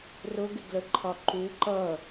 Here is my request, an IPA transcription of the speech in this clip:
rʊɡɪɡləǃʰɒ ǃu ǃʌ

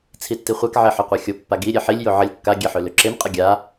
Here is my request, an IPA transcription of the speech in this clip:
t͡sʰitːiχʷak ʕeħøqʷaxʲo pːaɡi ɾʲeħilʲ joʕəlʲ kːa ɡʲeħøløǁem qʼəɡʲa

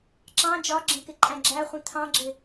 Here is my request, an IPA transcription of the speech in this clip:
ǁɑ̃ d͡ʒɒɡ͡ǁə̃kɪ ǃʼæ̃ɡ͡ǁæχʷĩ t̪ʰɑ̃ɡ͡ǁɪ

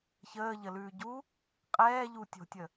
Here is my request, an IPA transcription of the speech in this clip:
çəːʎəlʉːɟu | qʼɛːʎu tʲo̤tʲə

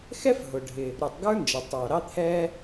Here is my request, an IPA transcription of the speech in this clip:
xɛ˥fɦʊ˩ɖʱɪ˩ | ɾu˩tˤ ɡə˞˥nd͡ʒʌ˩tˤɑ˩ ɾɑ˥t̪ʰɛ˥

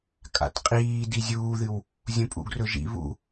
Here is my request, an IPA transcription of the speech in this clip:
kʼa̰tqʼiː dizʲuːðɨw | zʲũpʼṵɡrɵʒḭ βṵ

